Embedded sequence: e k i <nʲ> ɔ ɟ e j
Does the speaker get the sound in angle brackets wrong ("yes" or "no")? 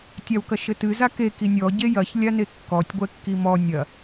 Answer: no